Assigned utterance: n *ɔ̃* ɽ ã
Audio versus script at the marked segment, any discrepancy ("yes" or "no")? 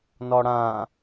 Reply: yes